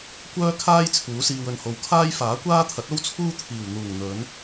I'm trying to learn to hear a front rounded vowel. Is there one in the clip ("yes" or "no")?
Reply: yes